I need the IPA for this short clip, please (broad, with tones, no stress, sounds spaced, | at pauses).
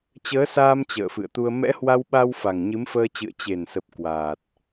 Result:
t͡ɕ əː˨˦ s aː˧ m t͡ɕ ə̰ː˧˨ f ɨ̰˧˨ ə̯ t̪ u˧ ə̯ m ɛ̰˧˥ h w a˧ w ɓ a˧ w f a˨˩ ŋ ɲ ɨ˨˦ m f əː˧ t͡ɕ ɨ̰˧˨ ə̯ t͡ɕ e˨˩ n s ə˨˩ p̚ k w aː˨˩ t̚